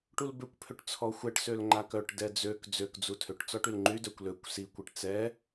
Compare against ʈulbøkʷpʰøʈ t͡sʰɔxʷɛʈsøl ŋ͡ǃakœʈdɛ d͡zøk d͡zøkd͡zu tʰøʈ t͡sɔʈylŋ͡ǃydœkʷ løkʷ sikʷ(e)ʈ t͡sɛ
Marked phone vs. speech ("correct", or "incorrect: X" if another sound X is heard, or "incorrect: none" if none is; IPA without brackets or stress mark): correct